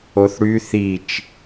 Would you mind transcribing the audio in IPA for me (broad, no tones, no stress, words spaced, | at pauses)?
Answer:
oθɽy θit͡ʃ